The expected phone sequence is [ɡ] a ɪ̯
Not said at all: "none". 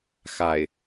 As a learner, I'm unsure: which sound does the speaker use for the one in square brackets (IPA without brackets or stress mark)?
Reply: x